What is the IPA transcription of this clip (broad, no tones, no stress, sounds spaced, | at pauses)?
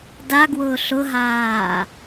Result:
d a ɡ w ʊː ɬ ʊ ɦ aː